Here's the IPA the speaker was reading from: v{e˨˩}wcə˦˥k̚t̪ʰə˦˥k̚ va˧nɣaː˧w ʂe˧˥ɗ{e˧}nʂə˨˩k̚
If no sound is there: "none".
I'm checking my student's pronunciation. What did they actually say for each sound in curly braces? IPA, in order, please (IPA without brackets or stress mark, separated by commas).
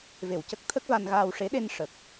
e˨˩, e˧